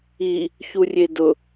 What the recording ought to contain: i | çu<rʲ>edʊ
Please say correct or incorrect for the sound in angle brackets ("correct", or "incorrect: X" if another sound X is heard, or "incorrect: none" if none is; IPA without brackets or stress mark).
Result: correct